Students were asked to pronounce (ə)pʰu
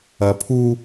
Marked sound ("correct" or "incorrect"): incorrect